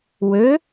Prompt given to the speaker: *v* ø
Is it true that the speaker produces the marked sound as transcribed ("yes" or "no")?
no